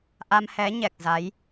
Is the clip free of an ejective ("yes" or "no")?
yes